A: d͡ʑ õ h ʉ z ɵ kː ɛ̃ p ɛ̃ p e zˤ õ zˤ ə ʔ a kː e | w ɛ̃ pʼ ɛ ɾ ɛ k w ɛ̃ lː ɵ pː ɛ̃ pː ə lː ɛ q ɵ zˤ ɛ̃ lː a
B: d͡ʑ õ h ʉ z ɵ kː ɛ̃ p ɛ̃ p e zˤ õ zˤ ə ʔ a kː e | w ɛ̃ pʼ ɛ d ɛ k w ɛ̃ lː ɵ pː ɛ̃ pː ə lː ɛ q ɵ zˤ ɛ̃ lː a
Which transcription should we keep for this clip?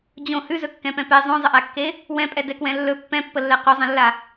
B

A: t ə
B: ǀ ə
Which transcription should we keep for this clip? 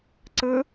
B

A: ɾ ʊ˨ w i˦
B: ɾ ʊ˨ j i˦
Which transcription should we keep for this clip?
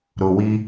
A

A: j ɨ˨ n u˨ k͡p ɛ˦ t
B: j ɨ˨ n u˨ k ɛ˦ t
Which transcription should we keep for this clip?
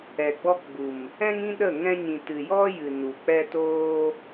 A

